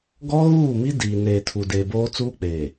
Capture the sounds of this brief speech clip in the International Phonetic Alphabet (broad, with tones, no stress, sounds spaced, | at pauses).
ɡ ɔ˦ ɣ uː˦˨ m i˦ d iː˨ n eː˨ tʰ u˨ d eː˨ b oː˦ t͡s uː˦ k͡p eː˨